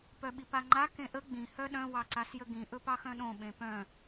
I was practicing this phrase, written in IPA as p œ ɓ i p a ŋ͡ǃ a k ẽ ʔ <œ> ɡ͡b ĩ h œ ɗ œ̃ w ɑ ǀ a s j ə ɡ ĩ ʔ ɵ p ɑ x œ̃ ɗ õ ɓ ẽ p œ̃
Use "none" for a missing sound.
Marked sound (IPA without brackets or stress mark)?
ə